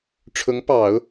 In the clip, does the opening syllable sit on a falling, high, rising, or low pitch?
rising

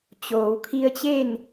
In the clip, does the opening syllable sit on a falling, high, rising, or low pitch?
low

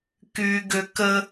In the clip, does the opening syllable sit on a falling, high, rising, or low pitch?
low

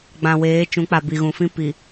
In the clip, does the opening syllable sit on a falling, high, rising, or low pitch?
low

